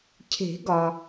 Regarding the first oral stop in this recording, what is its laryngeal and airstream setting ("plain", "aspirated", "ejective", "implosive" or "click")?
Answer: aspirated